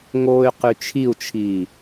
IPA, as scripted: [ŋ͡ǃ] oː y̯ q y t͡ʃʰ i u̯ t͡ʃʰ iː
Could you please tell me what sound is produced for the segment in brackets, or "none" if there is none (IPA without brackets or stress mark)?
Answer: ŋ